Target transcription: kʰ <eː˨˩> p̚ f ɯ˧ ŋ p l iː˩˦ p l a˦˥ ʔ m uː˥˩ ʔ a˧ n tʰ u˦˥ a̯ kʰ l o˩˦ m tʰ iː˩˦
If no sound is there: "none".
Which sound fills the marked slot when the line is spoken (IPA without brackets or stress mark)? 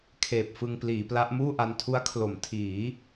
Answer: eː˨˩